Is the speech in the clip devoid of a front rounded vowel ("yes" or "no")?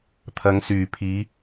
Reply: no